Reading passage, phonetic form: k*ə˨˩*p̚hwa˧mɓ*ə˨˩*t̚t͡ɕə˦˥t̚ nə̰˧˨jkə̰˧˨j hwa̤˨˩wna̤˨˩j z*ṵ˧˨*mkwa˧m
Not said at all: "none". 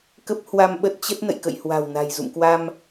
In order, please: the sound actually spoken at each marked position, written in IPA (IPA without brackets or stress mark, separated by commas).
ə˦˥, ə˦˥, ṵ˧˨